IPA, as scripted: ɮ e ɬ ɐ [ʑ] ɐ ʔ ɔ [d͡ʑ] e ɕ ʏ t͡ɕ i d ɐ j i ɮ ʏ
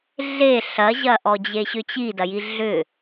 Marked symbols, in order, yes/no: yes, yes

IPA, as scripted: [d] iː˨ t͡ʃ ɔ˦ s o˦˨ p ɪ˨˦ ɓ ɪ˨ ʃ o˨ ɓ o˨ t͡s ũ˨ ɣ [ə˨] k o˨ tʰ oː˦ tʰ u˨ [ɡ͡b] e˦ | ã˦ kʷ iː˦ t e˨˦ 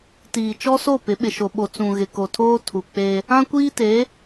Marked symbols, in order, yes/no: no, no, no

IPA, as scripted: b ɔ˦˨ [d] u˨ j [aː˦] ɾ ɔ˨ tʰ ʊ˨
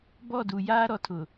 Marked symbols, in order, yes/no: yes, yes

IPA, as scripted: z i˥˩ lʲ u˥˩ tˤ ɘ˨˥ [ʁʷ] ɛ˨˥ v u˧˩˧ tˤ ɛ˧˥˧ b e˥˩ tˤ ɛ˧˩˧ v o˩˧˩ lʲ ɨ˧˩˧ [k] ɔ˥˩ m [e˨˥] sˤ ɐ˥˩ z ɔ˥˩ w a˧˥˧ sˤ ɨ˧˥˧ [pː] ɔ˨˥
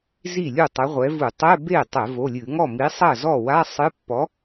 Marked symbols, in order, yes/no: yes, no, no, yes

